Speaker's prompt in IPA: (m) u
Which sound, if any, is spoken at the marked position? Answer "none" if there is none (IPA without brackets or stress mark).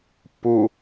p